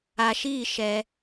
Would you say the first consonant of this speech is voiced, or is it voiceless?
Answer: voiceless